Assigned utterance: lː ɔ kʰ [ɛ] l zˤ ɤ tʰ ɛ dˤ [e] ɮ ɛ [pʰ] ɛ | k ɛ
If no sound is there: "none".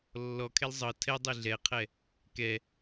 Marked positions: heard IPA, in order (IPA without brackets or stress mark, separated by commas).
ɛ, e, qʰ